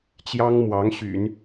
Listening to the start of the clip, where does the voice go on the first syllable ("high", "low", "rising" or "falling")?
high